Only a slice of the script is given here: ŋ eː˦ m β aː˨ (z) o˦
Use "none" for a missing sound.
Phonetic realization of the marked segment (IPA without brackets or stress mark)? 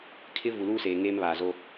z